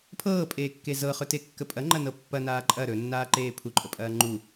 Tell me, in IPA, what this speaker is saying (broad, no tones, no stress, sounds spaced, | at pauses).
pʰ ɤː pʼ eː kː e z ɤ χ ɵ t e kː ə pʼ ɐ ŋ͡ǃ ɐ n ɤ pː ɐ n aː ǃʼ ɐ ɾ ɵ nː aː ǃ eː pʰ u ǃʼ ə pʼ ɐː ŋ͡ǃ u